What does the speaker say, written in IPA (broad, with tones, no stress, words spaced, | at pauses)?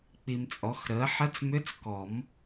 k͡pi˨mt͡sʼɔ˩˥xɾəː˩˥ ħə˧˥˧t͡smʏ˧˥˧t͡s kɔ˨˩˦m